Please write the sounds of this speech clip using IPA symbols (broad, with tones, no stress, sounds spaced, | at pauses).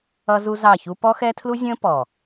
ʌ˦ z u˦ z ɑ˦˨ ç u˦ p ɔ˦ x ɛ˦ tʰ l u˦ zʲ ə̃ː˦ p ɔ˨